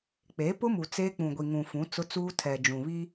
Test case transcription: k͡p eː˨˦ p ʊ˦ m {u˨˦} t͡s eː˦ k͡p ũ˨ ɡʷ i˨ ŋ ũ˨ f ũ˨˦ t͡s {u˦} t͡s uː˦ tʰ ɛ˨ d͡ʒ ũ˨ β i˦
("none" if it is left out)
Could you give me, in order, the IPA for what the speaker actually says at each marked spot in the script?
u˨, ʊ˦

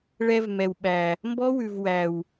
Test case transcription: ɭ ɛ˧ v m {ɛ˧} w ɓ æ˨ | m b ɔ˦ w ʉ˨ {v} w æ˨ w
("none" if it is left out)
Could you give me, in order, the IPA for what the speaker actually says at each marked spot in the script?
ɛ˨, v

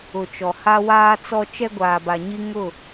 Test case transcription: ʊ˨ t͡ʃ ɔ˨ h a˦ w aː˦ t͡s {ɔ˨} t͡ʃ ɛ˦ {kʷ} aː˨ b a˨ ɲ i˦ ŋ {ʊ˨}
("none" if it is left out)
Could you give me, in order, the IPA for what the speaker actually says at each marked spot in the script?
ɔ˦, ɡʷ, ʊ˦˨

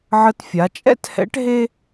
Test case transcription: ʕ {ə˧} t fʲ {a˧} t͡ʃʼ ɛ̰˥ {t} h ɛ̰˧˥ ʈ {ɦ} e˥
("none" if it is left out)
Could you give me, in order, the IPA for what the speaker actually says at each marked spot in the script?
ə˧, a˩˧, t, ɦ

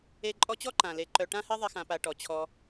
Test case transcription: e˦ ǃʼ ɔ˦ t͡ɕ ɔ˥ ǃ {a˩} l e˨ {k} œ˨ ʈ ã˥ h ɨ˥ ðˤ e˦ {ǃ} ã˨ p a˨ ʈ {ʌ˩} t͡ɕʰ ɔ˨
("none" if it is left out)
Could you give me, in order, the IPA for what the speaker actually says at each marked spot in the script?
ã˩, ǃ, x, ɔ˩

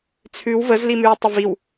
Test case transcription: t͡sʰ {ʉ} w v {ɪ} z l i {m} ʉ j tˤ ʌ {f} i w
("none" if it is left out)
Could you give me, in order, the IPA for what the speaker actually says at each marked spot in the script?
ʉ, ə, m, v

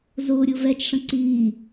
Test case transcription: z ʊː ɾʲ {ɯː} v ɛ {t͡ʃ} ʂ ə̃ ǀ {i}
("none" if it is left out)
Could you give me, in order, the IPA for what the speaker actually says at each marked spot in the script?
ʊː, t͡ʃ, iː

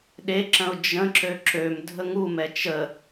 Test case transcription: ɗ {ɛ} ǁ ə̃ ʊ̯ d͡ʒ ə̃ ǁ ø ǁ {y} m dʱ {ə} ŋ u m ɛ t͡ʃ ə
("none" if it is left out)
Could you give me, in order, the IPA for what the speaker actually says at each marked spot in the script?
e, ø, ə

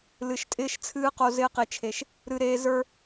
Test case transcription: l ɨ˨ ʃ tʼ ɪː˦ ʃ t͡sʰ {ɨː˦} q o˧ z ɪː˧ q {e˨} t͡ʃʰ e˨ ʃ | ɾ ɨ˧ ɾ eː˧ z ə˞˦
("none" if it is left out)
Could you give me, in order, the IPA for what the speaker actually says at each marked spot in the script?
ɨː˦, e˨

